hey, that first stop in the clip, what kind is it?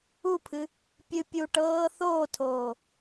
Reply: aspirated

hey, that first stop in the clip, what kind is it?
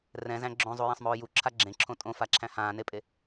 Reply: click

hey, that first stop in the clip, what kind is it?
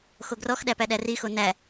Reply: plain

